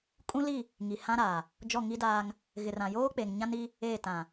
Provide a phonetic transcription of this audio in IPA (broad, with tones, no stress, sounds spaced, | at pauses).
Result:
kʼ ũ˦ l i˦˨ | ŋ i˨ h ã˦ ɾ aː˨ | d͡ʒ ɔ˦˨ ŋ i˦ d aː˦ ŋ | ɣ ɪ˨ r ã˨ j oː˦ k͡p e˨ ŋ ɲ ã˦ n i˦ | eː˦˨ t ã˨